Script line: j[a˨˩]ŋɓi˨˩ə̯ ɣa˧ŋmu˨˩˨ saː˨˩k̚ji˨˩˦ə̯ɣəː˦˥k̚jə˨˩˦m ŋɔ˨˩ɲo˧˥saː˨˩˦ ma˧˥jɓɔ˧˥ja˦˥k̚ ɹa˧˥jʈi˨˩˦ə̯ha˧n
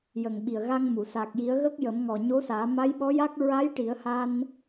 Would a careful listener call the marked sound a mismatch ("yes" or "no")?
yes